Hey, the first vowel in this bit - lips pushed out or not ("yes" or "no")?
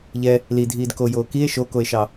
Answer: no